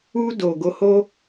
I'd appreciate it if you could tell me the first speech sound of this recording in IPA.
u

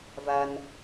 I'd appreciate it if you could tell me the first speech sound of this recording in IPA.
v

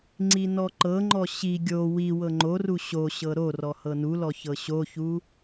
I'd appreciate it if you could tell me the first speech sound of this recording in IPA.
ŋ͡ǀ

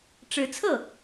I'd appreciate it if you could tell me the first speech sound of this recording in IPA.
ʈ͡ʂ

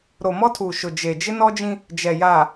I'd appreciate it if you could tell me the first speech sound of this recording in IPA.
ɾ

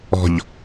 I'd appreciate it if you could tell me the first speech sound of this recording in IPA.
ɔ̤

